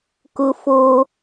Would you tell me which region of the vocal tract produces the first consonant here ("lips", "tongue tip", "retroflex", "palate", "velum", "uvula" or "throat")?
velum